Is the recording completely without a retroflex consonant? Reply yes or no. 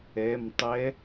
yes